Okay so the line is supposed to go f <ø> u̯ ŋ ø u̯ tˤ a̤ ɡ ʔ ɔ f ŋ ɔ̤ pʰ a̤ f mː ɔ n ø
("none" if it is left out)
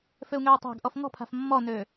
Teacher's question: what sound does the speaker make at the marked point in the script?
ø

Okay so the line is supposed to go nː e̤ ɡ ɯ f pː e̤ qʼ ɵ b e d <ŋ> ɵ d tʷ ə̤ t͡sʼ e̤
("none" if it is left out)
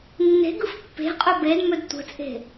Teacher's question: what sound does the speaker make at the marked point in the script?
m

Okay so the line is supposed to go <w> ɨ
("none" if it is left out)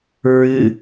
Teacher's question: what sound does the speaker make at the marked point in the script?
ɹ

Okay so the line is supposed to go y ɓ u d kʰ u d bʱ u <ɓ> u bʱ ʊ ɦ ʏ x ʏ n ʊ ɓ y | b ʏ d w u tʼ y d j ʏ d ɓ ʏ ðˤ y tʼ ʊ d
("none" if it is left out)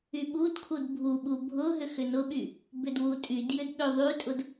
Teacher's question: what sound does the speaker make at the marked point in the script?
ɓ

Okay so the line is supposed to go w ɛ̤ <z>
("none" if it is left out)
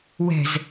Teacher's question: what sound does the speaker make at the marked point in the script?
z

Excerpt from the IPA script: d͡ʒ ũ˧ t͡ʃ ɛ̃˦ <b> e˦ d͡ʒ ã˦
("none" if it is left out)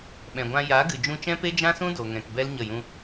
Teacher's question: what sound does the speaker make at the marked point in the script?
p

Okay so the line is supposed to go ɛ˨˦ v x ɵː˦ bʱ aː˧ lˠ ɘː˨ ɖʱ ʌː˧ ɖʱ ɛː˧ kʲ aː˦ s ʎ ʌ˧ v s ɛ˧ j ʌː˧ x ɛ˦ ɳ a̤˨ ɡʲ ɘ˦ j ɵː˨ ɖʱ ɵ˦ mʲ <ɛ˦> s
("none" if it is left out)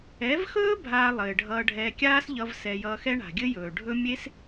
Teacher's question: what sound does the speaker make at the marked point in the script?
e˦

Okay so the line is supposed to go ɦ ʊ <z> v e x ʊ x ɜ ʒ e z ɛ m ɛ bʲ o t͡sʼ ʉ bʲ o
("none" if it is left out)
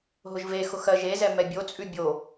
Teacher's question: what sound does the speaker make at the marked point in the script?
ʒ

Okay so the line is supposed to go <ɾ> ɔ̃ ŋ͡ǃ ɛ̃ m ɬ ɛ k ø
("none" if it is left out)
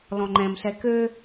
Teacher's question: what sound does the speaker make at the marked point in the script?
l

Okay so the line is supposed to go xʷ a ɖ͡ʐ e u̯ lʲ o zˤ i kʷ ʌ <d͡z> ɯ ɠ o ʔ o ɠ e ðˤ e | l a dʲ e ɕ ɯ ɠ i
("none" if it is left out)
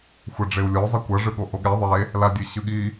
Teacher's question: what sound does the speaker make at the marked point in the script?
ʐ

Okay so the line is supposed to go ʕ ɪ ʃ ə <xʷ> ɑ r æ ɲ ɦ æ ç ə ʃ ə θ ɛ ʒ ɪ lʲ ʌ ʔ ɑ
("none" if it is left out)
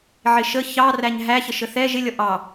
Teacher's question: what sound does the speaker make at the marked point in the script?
ç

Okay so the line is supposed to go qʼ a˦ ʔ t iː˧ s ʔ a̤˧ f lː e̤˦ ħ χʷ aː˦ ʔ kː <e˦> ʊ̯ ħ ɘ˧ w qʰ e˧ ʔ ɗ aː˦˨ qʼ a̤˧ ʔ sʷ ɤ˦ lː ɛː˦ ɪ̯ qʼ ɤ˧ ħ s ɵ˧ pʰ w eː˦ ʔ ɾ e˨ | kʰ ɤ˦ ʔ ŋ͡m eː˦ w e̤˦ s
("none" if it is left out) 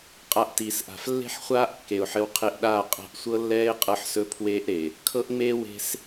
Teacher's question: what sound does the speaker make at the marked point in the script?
e˨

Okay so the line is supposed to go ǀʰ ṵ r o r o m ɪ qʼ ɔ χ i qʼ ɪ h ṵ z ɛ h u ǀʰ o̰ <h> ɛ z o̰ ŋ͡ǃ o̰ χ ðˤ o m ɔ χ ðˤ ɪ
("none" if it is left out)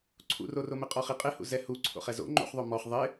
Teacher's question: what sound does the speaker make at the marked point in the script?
χ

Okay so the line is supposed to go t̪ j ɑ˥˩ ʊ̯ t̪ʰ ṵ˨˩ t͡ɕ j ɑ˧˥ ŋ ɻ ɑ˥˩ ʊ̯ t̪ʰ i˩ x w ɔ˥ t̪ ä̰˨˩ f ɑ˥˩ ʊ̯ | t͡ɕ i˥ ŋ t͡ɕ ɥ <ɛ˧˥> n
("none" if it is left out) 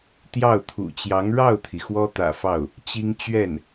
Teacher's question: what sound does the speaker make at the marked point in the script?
ɛ˥˩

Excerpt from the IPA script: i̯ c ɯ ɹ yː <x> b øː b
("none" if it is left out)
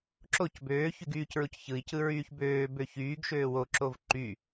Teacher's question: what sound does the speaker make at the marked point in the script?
ç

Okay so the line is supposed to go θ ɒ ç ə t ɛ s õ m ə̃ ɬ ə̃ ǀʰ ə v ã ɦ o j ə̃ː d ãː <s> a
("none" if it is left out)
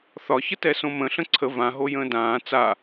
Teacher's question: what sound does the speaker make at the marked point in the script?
t͡s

